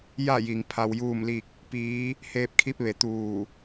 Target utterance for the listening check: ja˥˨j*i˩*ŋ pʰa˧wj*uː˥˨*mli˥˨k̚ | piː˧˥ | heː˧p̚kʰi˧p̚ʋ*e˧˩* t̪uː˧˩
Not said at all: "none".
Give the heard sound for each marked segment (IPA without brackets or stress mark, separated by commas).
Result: i˩, uː˥˨, e˩